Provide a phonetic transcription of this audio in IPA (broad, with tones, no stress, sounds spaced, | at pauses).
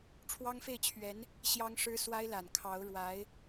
ʈ͡ʂʰ w ɑ˥ ŋ f e˥˩ ɪ̯ t͡ɕʰ ɥ ɛ˧˥ n | ɕ j ɑ˥ ŋ ʂ ɻ̩˥ s w a˥ ɪ̯ l a˨˩ n kʰ ɑ˧˥ ʊ̯ ɻ w a˧˥ ɪ̯